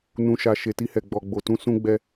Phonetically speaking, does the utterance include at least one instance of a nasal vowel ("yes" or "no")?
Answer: yes